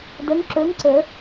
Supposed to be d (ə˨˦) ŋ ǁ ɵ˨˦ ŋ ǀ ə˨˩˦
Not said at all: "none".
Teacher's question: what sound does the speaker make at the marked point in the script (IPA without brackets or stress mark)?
ə˨˦